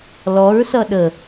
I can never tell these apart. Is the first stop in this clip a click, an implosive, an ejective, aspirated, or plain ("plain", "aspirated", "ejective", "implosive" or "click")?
implosive